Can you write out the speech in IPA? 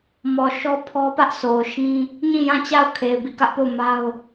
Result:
m ɔ˨ ʃ ɔ˦ pʰ ɔ˦ p ä˦ ʔ s o˨ ʊ̯ ʃ ĩ˦ | ɲ ĩ˦˨ j ã˦˨ t͡ɕ a˦˨ ʊ̯ kʰ e˨ ɪ̯ b i˦˨ k ä˦ ʔ p o˦˨ ʊ̯ m a˦ ʊ̯

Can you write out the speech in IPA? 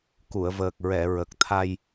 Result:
k u˨˩˨ ə̯ v əː˨˩ k̚ ɹ ɛ˨˩˨ ɹ ə˨˩ k̚ t̪ʰ a˧ j

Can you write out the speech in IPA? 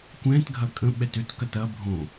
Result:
kʷ ɛ̃ t ɡʱ ɐ kʼ ə̃ ɓ ɛ t ø t k ɐ t ɐ bʱ õ

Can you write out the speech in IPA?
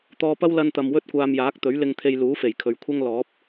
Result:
t̪ ɔː˧ p ɐ˥ w l ɐ˧ n t̪ ɐ˨ m w ɵ˥ t̚ kʷ aː˧ m j aː˨˥ k̚ t̪ ɵ˨˥ ɥ l ɪ˧ ŋ t̪ʰ e˧ j l uː˨˥ f e˨˩ j kʰ ɵ˨ ɥ kʷʰ ɐ˥ ŋ l ɔː˨˥ p̚

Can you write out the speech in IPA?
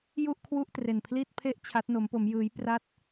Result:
j u˥˩ ʔ kʰ w u˥˩ ʔ t r e˧ n pʰ l i˥˩ t̚ pʰ e˥˩ ʔ t͡ɕʰ a˦˥ t̚ n o˦˥ m p o˦˥ m j ɯː˦˥ j p r a˥˩ t̚

